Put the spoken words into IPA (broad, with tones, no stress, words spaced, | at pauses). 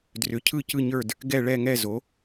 drʏ˩˥cʰɯ˦˨ cɯ˦˨ɲə˞˦˨d | ɡɛ˦˨ɭɛ˦˨ŋɛ˦˨ zo˩˥